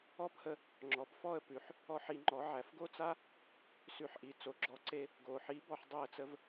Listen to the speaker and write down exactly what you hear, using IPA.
ɔ˥˩ p h ə˧ | ŋ͡ǁ ɔ˩ p f ɔ˥˩ ə̯ p ʉ˩ ħ | ɔ˥˩ ħ i˧ ŋ͡ǃ ɔ˩˥ ʕ æ˩ f ɡ o˥ t͡s a˥ | s ʉ˩˥ ħ ʔ i˩ t͡s o˩ ɡ͡ǁ ɔ˩˥ ǀ e˧ | ɡ o˩ ħ i˩˥ b ɔ˧ ħ dˤ e˥˩ ə̯ t͡s ə˥ v

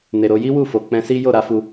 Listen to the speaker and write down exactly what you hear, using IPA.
n e˨ ɾ o˧ j i˦ w u˦˨ f o˨ k͡p ɛ̃˧ s i˦ j o˦˨ ɾ a˨˦ f u˧

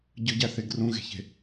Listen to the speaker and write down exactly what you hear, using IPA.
ɟ ɯ ɟ æ θ e ɡ r ũ ɣ e̤ ç e̤

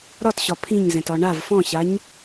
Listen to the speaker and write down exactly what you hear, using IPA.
ɾ ɒ t ɕ ɒ pʰ ĩ ɲ z ɛ̃ t ɒ ɳ a v f ɔ̃ ɕ a ɲ

